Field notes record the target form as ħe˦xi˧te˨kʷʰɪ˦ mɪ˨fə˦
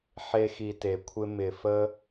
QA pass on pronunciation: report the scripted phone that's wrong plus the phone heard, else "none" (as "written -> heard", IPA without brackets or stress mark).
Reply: none